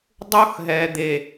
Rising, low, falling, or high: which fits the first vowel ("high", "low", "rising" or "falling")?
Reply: high